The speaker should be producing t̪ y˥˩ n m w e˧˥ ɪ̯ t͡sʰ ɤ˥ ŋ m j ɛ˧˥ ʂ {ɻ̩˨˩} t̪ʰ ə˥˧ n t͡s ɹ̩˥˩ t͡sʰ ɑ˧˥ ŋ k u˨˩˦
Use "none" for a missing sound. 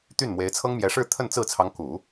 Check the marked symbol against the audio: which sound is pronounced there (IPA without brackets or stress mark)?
ɻ̩˥˧